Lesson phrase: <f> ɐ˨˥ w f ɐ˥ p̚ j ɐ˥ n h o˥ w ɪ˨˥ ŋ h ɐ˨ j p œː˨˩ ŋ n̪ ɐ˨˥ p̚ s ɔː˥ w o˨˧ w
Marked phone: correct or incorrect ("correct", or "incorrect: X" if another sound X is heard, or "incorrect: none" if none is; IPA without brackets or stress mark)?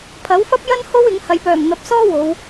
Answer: incorrect: pʰ